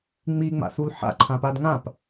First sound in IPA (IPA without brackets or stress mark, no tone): ŋ͡m